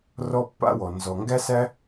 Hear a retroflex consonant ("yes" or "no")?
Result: no